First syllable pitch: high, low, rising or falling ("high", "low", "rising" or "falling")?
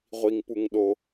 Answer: low